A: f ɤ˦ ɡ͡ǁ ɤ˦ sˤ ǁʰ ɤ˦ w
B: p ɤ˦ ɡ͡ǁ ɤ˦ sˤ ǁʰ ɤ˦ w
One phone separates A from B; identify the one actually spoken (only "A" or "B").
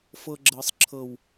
A